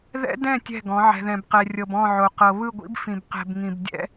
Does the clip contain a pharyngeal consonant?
yes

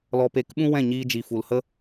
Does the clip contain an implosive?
yes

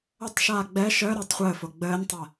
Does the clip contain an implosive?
no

